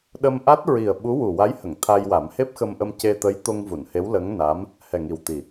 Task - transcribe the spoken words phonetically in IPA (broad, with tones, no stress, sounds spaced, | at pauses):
ɗ ə˧ m ʔ a˦˥ t̚ ɹ i˨˩ ə̯ ɓ u˧˥ w u˨˩ w a˧˥ j h ə˨˩˨ ŋ t̪ʰ a˧ j w a˨˩˦ m h e˦˥ p̚ x ə˧ m ʔ ə˧ m c e˧ t̪ ə˧˥ j t̪ o˧ ŋ v u˨˩˨ n h e˧˥ w l ə˧˥ ŋ n a˧˥ m | h ɛ˨˩ ŋ i˨˩ w t̪ i˨˩